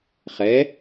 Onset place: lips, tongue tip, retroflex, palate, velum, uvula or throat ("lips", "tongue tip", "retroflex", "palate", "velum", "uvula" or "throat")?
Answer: uvula